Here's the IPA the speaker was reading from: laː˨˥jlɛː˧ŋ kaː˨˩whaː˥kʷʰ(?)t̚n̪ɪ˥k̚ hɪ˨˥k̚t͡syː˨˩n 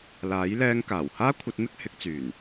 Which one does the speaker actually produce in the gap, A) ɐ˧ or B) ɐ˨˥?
A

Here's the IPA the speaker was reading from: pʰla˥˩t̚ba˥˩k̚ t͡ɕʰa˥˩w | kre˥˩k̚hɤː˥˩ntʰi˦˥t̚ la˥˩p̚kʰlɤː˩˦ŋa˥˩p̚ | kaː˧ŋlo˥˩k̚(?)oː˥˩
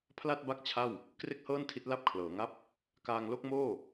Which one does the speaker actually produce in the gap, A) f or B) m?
B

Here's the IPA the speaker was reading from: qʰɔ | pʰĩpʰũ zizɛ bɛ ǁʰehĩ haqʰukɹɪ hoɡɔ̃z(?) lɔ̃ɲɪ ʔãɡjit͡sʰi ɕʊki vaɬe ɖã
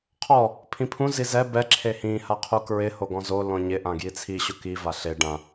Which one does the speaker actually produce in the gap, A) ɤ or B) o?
B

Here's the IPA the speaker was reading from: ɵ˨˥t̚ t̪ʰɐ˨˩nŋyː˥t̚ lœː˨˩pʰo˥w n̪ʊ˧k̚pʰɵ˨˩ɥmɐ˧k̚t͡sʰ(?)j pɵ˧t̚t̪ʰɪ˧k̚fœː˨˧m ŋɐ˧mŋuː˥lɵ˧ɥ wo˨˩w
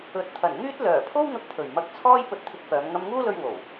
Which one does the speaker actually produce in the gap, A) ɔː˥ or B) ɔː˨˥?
A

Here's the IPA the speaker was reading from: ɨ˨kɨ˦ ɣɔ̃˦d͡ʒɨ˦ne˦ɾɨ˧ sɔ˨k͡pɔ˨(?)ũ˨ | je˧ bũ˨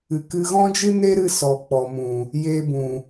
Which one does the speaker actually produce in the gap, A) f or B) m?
B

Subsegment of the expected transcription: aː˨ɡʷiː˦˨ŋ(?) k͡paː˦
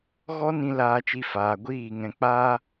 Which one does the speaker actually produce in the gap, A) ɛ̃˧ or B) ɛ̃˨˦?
A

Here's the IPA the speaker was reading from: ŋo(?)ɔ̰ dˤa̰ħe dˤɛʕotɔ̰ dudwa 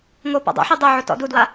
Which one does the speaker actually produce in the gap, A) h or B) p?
B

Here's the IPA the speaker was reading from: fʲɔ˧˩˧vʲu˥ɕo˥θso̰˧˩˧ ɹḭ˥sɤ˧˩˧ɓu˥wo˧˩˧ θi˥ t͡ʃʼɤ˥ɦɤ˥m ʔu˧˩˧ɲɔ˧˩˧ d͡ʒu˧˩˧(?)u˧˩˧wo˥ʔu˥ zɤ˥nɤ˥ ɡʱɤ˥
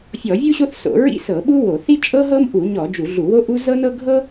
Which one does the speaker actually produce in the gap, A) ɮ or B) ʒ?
A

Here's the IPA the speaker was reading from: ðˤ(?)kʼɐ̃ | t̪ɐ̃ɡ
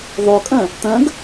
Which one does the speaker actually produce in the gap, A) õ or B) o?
B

